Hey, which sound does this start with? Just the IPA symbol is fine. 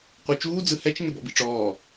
qʷ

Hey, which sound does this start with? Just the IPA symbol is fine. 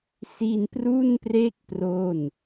s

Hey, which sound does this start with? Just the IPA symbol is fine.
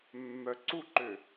mː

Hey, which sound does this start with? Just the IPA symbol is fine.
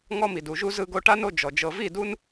ŋ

